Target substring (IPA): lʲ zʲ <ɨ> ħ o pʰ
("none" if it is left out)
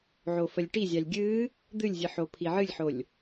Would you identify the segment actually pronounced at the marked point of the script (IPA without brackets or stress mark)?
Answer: ɨ